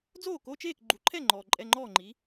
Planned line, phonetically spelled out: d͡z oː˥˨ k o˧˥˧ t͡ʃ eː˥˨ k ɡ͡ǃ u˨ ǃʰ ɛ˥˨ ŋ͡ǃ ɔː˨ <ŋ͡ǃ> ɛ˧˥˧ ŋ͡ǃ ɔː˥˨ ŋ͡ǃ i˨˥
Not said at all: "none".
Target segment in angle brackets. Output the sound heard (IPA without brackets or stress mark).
ǃʼ